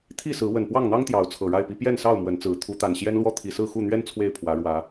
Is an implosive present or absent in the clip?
absent